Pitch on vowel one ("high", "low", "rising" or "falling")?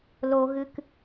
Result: high